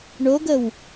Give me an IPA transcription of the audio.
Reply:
ɳ o ɡ ə w

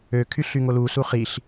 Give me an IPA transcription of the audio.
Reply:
ø kʰ y ɬ y ŋ o l u s u χ i ɬ

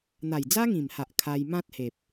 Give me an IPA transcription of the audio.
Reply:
n̪ a˨˩ j d͡z a˦ ŋ ĩ˨˩ m h a˨ ʔ kʰ a˧ j m ã˦ t̚ h e˨ p̚

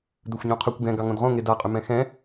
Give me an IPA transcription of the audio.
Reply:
d ɵ xʷ ɲ õ qʰ ɵ kʷ ɡ ɛ̃ ɡ ɑ ŋ õ d ʁ õ ŋ e d a qʼ ʏ m ɛ̃ x ɛ̃

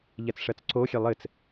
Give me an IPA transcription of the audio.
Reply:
ʎ ɛ t͡s ʂ ɜ t͡s ǀ o xʲ ɛ lˠ ɘ t͡s

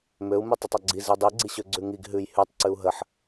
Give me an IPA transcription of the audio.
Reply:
m ø u̯ m ʉ tˤ i tˤ ɔ ɡ͡ǀ i z i dˤ i ɡ͡ǀ i ɕ ø ɡ͡ǀ ʉ ŋ i ɡ ɦ ʉ j h ʉ tˤ ǀ ʉ u̯ ɦ ə ħ

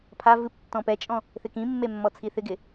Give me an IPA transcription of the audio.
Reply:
pʰ a v ɨ p tː ɔ̃ p ɛ t͡ʃʼ ɔ̃ | θ ɪ k ĩ mː e mː ɔ t͡sʰ i θ ɪ ɡ ɪ

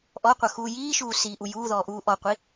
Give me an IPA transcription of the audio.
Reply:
ʔ ɔ qʷ ʌ x uː j iː ʃ uː s iː ʔ u j uː ð ɔː ʔ uː ʔ ɔ qʷ i

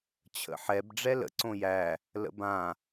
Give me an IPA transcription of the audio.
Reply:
t͡ɕʰ ə̰ ħ ɛ b ɖ͡ʐ ɛ l ə̰ ǀ õ j æ | l ə̰ b ã

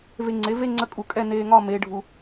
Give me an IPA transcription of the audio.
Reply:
v e˧ ŋ͡ǀ e˩˥ v e˥˧ ŋ͡ǀ ə˧˥ kʼ u˧˩˧ kʼ ɛ˥˧ n eː˧ ŋ ɒ˥˧ m eː˧˥ ɖʱ u˧

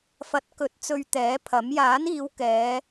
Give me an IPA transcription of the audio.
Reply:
f ɐ˨˥ t̚ k ɵ˨˥ t̚ t͡s ɵ˧ ɥ t̪ ɛː˨˥ pʰ ɐ˨˥ m j aː˨˥ n iː˨˧ w k ɛː˨˧

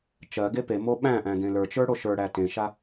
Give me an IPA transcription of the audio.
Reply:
t͡ʃ ɜ ɡ e p e m o ɓ æ̃ ʔ æ̃ ɡ ẽ l ə˞ t͡ʃ ə˞ ɽ o ʃ ə˞ ɽ æ t ẽ ʃ a

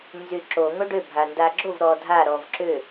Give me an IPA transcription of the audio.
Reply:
n z y ǁ o ŋ o ɖ ʏ bʱ a n d a ɡ͡ǁ o v ɾ ɔ dʱ a ɾ ɔ v ǁ ʏ

